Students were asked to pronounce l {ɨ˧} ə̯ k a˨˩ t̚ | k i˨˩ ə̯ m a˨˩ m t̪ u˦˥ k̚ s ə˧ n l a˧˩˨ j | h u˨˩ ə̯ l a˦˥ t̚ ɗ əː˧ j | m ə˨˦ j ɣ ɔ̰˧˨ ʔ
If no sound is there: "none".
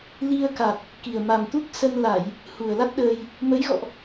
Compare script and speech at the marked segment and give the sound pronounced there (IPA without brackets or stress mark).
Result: i˧